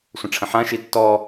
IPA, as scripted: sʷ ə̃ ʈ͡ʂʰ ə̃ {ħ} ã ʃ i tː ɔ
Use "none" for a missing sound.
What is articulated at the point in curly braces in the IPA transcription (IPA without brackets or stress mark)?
ħ